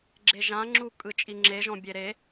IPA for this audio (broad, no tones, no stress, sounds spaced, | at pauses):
ɡ͡ǁ e ʒ ã ŋ͡ǁ u kʼ ɯ t͡ʃʼ i ŋ͡ǁ e ʒ ɔ̃ bʲ e ɾ e